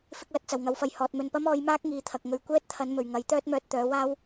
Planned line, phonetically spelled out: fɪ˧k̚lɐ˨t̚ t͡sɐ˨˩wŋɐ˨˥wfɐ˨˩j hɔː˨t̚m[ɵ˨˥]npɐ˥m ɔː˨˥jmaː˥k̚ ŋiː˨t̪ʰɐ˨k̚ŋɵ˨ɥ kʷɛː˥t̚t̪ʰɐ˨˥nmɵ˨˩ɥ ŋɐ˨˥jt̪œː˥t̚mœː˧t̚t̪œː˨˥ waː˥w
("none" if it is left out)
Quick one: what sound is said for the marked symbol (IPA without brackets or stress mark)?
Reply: ɵ˨